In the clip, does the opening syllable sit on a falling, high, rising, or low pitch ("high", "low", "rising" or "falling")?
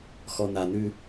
low